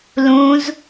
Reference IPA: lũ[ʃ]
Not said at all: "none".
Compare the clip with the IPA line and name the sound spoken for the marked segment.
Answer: z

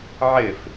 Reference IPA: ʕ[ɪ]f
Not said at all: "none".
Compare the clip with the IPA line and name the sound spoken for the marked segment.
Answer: ɪ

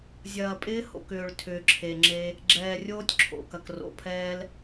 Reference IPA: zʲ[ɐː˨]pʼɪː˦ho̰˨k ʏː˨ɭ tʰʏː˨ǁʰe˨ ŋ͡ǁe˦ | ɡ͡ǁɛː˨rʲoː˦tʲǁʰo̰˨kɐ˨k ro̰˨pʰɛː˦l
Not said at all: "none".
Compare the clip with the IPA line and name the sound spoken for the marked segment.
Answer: ɐː˨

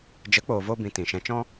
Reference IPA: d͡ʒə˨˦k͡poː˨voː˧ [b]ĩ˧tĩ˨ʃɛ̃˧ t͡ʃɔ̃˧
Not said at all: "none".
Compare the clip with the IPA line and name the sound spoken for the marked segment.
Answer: b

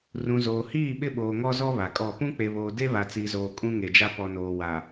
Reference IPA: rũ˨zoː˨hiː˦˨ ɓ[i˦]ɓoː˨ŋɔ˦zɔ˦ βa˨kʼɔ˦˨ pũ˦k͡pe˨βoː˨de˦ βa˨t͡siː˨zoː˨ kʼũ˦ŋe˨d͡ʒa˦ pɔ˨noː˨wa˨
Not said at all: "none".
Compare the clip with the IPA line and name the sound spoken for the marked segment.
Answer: ɪ˦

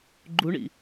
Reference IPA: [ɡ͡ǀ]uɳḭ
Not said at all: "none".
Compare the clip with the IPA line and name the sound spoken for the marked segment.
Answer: ɡ͡ǃ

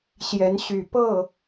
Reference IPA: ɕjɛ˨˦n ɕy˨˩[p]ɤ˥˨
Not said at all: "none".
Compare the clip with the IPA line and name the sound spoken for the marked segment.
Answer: p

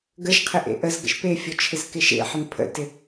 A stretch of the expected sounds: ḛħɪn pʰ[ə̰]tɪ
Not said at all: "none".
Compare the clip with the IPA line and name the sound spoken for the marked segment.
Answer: ə̰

